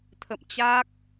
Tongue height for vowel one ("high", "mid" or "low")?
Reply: mid